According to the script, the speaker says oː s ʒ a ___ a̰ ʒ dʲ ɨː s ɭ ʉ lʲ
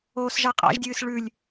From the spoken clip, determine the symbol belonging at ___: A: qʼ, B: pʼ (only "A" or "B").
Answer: A